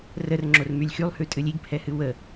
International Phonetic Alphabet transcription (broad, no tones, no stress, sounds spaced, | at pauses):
r ə r ŋ͡ǁ o r m y lʲ x y lˠ h ʉ tʼ ɨ lʲ i ɡ pʰ ɛ h ɨ w ə